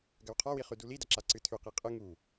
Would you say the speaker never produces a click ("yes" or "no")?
no